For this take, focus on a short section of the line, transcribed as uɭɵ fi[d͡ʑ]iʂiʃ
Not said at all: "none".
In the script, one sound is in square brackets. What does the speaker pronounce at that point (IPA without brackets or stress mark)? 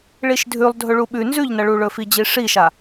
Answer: d͡ʑ